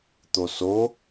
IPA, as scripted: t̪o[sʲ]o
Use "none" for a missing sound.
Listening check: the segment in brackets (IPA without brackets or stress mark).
s